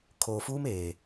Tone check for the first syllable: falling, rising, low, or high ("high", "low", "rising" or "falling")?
low